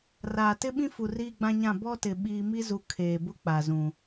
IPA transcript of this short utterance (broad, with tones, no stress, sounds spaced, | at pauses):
r aː˨ t ɪ˦ ɓ ĩ˦ f u˨ r iː˦ ɡ͡b ã˦ ɲ ã˦˨ b ɔ˦ t ɪ˨ ɓ iː˦ m i˦ z u˨ kʰ eː˨ b ʊ˦ k͡p a˨ z ũ˨